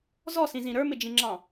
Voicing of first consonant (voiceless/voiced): voiced